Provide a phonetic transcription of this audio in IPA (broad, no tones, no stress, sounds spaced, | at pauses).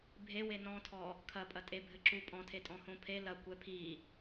bʱ e w e n ɔ̃ tʰ ɔ | kʰ ɐ pʼ ɐ tʼ e bʱ ɘ ǁ u pʼ ɔ̃ tʰ e tʼ ɔ̃ h õ pʰ e l ɐ kʷ ɛ pʰ i